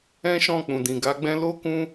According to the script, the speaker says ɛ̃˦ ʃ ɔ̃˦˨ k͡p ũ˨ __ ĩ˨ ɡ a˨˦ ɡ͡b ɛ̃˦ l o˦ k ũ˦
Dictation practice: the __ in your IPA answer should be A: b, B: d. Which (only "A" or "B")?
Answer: B